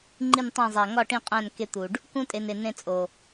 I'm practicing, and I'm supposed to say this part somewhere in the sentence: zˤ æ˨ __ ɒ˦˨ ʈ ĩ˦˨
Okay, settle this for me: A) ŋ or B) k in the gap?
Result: A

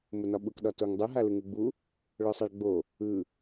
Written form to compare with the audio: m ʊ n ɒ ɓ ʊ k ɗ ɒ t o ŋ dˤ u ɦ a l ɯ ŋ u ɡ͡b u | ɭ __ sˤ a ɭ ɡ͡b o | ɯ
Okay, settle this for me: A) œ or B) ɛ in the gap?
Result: A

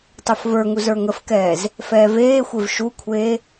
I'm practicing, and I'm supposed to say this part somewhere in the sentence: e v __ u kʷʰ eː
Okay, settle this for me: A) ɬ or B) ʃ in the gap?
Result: B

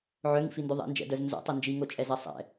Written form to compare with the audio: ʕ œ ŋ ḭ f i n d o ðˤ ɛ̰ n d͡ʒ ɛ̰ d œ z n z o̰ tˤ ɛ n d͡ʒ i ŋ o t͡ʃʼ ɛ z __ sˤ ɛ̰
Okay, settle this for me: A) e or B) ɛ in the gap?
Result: B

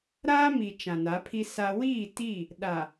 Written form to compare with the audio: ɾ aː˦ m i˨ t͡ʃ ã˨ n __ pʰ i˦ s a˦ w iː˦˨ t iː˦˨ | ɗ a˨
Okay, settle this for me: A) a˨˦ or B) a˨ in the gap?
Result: A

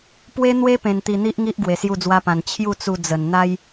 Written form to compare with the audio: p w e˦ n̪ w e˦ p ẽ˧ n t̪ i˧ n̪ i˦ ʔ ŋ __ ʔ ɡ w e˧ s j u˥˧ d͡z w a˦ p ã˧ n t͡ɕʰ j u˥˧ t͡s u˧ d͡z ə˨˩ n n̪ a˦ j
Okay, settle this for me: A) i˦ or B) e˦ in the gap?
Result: A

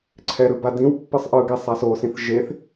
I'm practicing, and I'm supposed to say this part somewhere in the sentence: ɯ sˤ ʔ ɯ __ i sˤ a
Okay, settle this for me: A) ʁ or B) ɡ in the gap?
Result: B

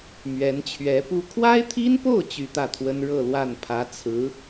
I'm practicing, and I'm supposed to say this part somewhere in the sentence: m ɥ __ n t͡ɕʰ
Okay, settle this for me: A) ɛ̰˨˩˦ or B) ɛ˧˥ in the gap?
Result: B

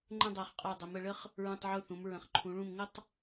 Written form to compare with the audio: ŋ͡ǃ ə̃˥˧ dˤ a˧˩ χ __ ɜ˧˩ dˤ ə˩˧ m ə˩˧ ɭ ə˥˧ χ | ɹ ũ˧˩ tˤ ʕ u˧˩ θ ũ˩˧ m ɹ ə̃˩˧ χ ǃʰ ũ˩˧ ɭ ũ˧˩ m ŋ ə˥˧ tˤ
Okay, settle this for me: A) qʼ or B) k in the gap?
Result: A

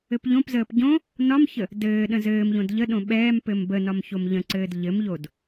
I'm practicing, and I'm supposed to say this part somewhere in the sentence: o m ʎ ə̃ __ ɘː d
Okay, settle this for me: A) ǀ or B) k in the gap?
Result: A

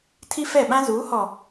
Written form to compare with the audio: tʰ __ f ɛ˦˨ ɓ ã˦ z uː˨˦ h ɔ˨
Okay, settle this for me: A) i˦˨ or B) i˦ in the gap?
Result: B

